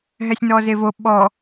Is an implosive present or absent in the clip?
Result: present